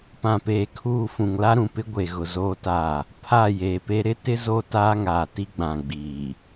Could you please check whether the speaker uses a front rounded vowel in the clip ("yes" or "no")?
no